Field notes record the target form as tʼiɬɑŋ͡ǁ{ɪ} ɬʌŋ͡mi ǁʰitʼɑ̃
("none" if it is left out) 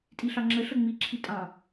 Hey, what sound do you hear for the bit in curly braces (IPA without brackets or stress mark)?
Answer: ə